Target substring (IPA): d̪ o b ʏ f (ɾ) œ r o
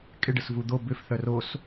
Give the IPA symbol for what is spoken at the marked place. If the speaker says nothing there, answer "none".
θ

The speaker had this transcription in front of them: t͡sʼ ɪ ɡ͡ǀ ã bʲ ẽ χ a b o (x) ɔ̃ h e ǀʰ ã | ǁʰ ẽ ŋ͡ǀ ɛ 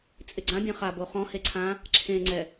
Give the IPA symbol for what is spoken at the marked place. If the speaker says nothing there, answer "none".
χ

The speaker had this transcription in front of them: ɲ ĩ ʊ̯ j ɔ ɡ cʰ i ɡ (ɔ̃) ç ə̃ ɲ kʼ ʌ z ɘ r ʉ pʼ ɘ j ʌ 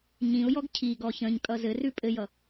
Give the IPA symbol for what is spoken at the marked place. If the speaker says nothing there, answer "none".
ɔ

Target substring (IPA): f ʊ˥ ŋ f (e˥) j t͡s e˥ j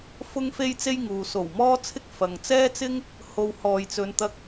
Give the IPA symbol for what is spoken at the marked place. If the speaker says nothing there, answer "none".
e˥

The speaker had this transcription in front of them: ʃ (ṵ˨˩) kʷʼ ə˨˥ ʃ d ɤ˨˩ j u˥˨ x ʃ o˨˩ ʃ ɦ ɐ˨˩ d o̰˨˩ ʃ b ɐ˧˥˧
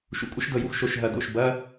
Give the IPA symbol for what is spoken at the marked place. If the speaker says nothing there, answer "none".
ṵ˩˧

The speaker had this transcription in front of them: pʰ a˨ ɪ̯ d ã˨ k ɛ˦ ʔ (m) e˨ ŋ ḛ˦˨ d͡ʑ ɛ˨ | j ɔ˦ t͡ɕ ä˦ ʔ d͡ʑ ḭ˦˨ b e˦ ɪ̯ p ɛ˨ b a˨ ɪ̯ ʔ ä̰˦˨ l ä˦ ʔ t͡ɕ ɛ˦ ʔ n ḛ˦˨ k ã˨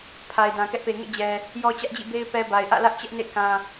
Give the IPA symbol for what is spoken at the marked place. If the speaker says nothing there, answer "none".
p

